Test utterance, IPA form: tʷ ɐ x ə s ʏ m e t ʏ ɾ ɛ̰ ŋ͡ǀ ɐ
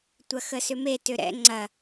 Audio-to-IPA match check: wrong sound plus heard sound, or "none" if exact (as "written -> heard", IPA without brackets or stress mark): none